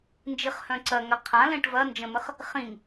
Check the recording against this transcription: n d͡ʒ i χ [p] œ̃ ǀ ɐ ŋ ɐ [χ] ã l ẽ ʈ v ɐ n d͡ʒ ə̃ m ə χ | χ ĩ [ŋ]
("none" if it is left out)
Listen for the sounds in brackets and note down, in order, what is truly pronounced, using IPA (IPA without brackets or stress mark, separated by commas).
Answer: h, qʰ, ŋ